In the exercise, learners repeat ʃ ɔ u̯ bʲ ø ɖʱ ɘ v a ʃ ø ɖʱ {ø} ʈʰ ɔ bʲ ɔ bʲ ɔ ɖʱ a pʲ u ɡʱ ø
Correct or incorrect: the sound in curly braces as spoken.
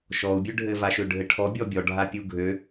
incorrect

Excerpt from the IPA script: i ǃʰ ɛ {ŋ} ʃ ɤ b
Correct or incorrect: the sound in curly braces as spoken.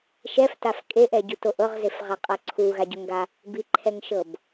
correct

